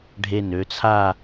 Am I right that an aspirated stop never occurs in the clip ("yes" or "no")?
no